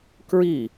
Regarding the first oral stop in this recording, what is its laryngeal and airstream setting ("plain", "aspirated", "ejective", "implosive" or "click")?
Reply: plain